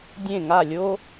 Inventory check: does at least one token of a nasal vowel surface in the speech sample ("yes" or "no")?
yes